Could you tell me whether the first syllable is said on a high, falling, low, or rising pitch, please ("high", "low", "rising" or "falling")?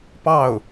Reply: falling